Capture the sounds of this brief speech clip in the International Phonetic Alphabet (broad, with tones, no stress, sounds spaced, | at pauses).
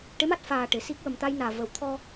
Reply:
ʈ e˧˥ m a˦˥ t̚ f aː˨˩ ʈ e˨˩˨ s i˦˥ k̚ w ə˨˩ m t̪ a˧ j n aː˨˩ v ə˨˩˨ w t̪ʰ ɔ˧